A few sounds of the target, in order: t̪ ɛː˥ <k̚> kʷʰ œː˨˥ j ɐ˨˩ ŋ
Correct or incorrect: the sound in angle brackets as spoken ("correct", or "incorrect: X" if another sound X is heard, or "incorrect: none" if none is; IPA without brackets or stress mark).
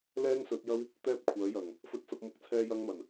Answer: incorrect: p̚